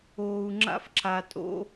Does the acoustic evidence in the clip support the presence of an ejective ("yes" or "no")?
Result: yes